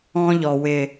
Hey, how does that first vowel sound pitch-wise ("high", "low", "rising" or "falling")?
high